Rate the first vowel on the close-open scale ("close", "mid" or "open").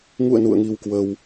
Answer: close